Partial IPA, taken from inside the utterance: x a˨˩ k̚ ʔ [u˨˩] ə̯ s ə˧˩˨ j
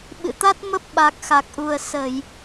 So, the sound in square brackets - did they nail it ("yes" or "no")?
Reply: yes